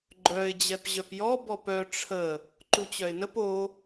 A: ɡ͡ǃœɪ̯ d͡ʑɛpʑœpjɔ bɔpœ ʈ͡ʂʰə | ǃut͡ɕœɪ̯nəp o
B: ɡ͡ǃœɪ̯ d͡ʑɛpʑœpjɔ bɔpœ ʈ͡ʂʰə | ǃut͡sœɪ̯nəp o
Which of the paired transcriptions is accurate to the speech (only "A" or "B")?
A